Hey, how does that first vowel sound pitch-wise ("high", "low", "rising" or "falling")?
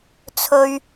high